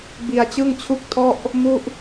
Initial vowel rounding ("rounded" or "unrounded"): unrounded